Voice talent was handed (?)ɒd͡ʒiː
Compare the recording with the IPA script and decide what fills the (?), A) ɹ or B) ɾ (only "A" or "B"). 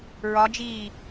A